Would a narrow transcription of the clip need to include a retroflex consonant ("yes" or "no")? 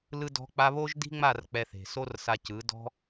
no